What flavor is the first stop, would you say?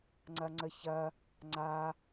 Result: click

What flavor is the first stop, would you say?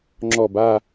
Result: click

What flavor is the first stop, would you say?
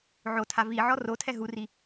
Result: aspirated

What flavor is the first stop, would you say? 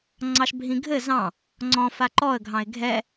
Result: click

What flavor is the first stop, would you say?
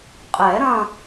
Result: ejective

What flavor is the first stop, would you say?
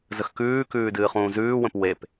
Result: plain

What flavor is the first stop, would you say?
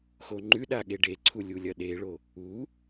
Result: click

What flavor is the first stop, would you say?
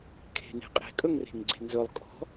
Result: aspirated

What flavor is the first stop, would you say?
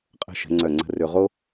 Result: ejective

